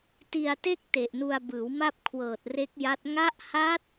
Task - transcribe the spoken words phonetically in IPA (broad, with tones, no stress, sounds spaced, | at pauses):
t i˧ a̯ t e˥˩ k̚ t e˨˩ ʔ n u˧ a̯ b ɯː˩˦ w m a˥˩ p̚ kʰ w ɤː˨˩ t̚ r e˦˥ k̚ j a˦˥ t̚ ŋ a˦˥ ʔ h a˦˥ t̚